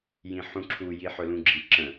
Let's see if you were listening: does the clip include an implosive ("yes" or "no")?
no